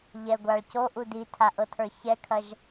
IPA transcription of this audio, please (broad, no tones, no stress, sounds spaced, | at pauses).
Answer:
ʎ ɛ ɡʷ a ɭ c o ʔ u d i tʰ a ʔ ɤ tʰ ə˞ ç ɛ kʰ ɐ ʒ